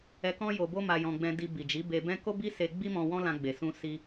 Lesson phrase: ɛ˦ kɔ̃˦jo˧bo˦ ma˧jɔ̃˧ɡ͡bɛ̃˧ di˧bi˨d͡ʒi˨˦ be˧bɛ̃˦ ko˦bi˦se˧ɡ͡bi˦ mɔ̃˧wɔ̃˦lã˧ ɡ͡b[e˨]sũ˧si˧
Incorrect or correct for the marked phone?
correct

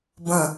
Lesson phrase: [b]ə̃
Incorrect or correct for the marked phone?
correct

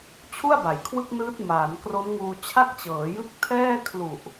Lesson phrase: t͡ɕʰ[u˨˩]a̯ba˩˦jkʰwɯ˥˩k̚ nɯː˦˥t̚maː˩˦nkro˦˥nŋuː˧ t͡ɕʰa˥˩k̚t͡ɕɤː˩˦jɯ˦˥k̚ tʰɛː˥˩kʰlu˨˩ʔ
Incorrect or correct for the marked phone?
incorrect: u˥˩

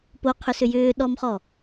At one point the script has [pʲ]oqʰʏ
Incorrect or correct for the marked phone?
incorrect: p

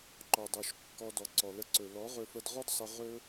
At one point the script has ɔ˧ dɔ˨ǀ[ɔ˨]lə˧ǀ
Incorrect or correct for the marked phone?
correct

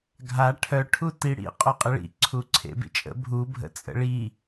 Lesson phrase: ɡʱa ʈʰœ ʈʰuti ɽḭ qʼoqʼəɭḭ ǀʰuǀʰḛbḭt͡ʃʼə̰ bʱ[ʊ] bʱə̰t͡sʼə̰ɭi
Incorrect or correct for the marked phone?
incorrect: u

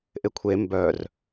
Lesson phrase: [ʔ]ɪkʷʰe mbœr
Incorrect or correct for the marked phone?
correct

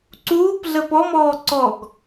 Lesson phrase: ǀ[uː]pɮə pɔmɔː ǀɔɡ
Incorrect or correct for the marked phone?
correct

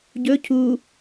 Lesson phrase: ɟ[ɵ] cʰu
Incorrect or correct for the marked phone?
correct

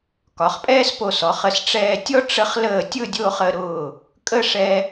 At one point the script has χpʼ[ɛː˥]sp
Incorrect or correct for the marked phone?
correct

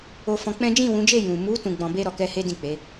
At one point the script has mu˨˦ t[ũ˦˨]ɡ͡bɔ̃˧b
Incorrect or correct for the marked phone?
incorrect: ũ˧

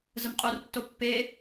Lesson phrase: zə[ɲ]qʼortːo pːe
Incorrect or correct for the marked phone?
incorrect: m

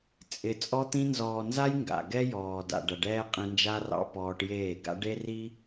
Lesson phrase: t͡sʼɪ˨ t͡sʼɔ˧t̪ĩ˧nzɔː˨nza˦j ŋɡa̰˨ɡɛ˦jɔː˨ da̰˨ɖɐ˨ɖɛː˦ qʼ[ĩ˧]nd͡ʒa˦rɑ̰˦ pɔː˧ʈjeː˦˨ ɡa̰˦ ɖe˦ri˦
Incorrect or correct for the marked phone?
correct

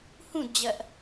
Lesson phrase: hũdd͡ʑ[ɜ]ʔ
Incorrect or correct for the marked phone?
correct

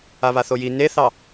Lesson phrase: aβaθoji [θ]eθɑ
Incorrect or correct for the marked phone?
incorrect: n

